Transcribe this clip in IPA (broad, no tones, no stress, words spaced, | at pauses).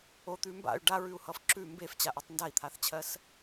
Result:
ot̪ʉ mba̰y̯ ɖaɹʉu̯hʌf ǁʉ mbeft͡ɕaʔʉtˤ ndai̯t̪ʰaθt͡ɕʰɜs